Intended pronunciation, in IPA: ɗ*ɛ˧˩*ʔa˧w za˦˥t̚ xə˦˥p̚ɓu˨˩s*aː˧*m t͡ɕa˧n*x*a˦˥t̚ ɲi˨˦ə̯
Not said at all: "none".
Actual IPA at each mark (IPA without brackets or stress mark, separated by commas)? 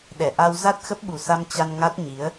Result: ɛ˧˩, a˧, ŋ